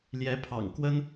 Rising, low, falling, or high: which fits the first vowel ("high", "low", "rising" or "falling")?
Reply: rising